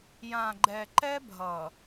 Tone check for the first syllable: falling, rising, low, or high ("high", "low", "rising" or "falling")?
low